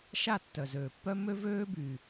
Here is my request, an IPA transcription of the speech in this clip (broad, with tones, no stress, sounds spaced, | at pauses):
ʃ a˦˨ tː œ˨ z øː˨ pː œ˦ m ø˦ v øː˦ b yː˨